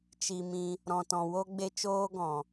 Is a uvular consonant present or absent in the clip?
absent